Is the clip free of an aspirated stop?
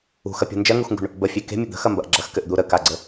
yes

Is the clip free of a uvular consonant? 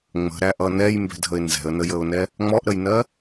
yes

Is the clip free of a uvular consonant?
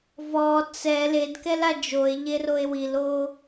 yes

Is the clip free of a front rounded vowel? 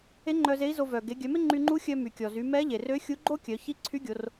no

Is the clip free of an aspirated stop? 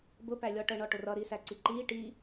yes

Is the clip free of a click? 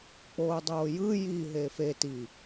yes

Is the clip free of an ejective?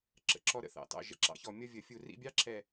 yes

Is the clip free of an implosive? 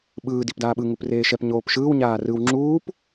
no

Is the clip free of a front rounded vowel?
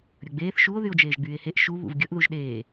no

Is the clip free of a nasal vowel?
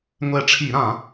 no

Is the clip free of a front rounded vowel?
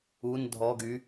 no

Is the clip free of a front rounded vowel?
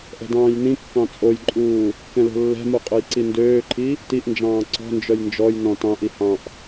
no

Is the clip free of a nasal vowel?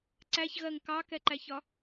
yes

